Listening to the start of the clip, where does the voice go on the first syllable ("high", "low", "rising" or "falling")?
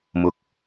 low